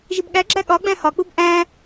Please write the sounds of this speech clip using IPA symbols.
ʒibɠæɡ͡ǁæ ɠɒɡ͡bæ̃ hɒk͡pub ʔæ̃

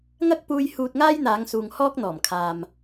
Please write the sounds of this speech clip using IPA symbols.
ŋɐ˥k̚puː˧j huː˧t̚ŋaː˥jn̪aː˨˧ŋsuː˨ŋ hɔː˥k̚n̪ɔː˨˩mkʰaː˨m

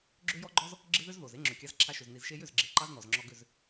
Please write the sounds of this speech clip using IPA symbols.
ɡ͡ǁø˦jɔ˦ɡ͡ǃɔ˦z | ɡ͡ǁɪ˦ðʏ˦z ðo˨z e˦ŋ͡ǁø˨kʲɑ˧z ǁʰa˧ʃʏ˨z ni˨zʃe˧jʏ˦˨z ɡ͡ǁe˨ǃɑ˦znɔ˨zŋ͡ǁɔ˧ ɡʏ˦˨z

